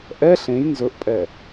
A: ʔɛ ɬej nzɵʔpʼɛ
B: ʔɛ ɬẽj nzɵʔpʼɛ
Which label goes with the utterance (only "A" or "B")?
B